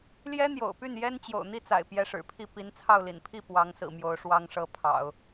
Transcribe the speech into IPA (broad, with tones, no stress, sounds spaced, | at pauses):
l j ɛ˥ n̪ j o̰˨˩ ʊ̯ p y˥˩ n j ɛ˥ n t͡ɕ j o̰˨˩ ʊ̯ n̪ i˥˩ t͡s a̰˨˩ ɪ̯ p j ɛ˧˥ ʂ ɻ̩˨˩ pʰ i˥˩ p i˧˥ n t͡sʰ ɑ˥˩ ʊ̯ l ḭ˨˩ n pʰ i˥˩ p w ɑ˧˥ ŋ s ɹ̩˨˩ m j o˧˥ ʊ̯ ʂ w ɑ˥ ŋ ʂ ɤ˥ pʰ ɑ̰˨˩˦ ʊ̯